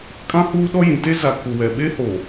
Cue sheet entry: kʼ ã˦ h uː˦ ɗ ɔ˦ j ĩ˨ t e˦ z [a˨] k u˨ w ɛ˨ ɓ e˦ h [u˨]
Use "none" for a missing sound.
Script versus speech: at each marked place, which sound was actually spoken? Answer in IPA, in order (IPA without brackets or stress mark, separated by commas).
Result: a˨, o˨